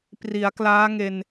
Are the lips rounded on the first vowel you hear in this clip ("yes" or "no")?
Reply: no